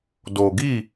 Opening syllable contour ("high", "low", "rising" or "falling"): low